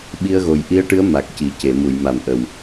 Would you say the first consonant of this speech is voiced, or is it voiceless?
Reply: voiced